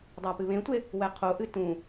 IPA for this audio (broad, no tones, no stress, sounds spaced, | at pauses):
dˤ a p ɨ β ẽ tʷ e | w ɛ qʰ o ʔ ɨ t ũ